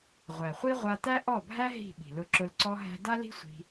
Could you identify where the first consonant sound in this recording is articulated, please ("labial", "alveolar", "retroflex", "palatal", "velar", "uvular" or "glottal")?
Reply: uvular